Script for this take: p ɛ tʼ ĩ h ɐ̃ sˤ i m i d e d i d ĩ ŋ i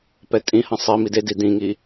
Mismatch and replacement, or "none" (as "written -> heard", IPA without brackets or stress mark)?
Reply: none